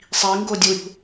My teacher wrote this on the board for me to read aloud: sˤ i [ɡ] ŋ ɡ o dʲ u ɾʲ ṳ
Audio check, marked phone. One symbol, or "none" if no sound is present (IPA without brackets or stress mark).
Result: none